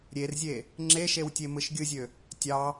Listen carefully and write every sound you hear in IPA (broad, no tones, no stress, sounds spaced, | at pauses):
ɾʲ e r zʲ e | ŋ͡ǁ e ʃ e w tʲ e m ɯ ʃ ɡʲ ɯ zʲ ø | tʲ ɑ